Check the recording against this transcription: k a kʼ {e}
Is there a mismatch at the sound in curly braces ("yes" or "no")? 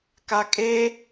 no